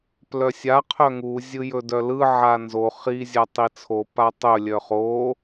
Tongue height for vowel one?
mid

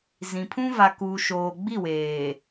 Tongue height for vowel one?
high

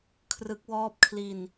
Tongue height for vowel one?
high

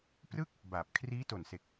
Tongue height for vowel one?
high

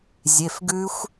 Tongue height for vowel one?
mid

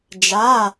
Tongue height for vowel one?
low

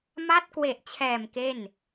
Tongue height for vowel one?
low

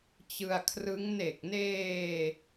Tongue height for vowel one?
high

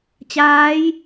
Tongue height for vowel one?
low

